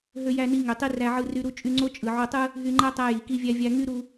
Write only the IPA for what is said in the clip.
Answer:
ɦ ø˧ j æ˧ n i˧ ŋ ø˩ tˤ i˧ r æ˧ ʕ ɯ˧ r y˧ ɾ u˥ t͡ʃʼ y˧ ŋ͡ǀ o˥ t͡ʃʼ ɯ˩ ʕ o˧ tˤ ɯ˥ | ɦ y˧ ŋ͡ǃ æ˥ tˤ æ˧ j i˩ k i˧ vʲ æ˧ vʲ æ˧ ŋ y˥ ɾ u˧

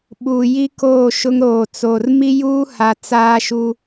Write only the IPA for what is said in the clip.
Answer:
ɓ u˨ j i˦ k oː˦˨ ʃ ʊ˦ ŋ ɾ oː˨ t͡s oː˨ r m i˦ j uː˦ h a˨ t͡s aː˦ ʃ u˦

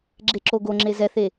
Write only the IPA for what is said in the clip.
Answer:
ɡ͡ǁ e ǁ o ɡ o ŋ͡ǁ e z ɛ θ e

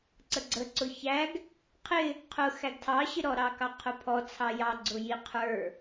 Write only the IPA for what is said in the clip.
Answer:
ǀ ə ɡ͡ǀ ə ǀ ʊ ç æ ɡ | qʰ ɪ | qʰ ʊ x æ ɡ tʰ ɑ ɕ ɪ ɾ ɔ ɾ ɑ k ɑ qʰ ʊ pʰ ɔ t͡sʰ ɑ j ɑ ɡ͡ǀ ʊ j i qʰ ə˞

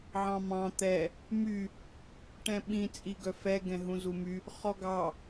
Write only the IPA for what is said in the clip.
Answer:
ʕ ɑ̃ m ɑ̃ t̪ ɛ | m y | ʈ ɛ̃ ɓ ĩ t͡sʼ i ɡ œ f ɛ ɡ ɛ̃ ɦ ũ z u m y | χ ɔ ɡ ɑ

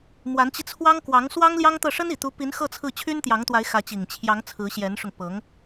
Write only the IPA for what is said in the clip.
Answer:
m w a˧˥ n t͡ɕ i˧ t͡sʰ w ɑ˥ ŋ k w ɑ˧˥ ŋ s w ɑ˥ ŋ l j ɑ˥ ŋ t̪ ɤ˥˩ ʂ ə˥ n i˨˩ t̪ u˧˥ p i˧˥ n x ɤ˥˧ t͡sʰ ɹ̩˥˩ t͡ɕʰ y˥ n t̪ j ɑ˧˥ ŋ t̪ w a˧˥ ɪ̯ x ä˧˥ t͡ɕ i˨˩ ŋ t͡ɕʰ j ɑ˧˥ ŋ t͡sʰ ɹ̩˧˥ ɕ j ɛ˧˥ n ʂ ʊ˧ ŋ p ɤ˧˥ ŋ

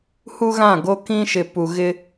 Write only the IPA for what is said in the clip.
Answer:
h u˦ ɣ ã˦˨ ɡ o˦ k ĩ˦ ʃ ɪ˨ p u˨ ɣ ɪ˦

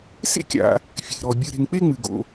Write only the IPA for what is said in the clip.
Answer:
s ḛ˥ kʲ a̰˨ | fʲ e̤˩ ɾ ɔ˩ bʲ ɨ˨ ɾ e̤˨ ŋ k͡p e˥ ŋ͡m ɨ˩ ɡ o̰˨

